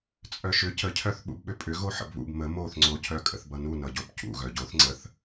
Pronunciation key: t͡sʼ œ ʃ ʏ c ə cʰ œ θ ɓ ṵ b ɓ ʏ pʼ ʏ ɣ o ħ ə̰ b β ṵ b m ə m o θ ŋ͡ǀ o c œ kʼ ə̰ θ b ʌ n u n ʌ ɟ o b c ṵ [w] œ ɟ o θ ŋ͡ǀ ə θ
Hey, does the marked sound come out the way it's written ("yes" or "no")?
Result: no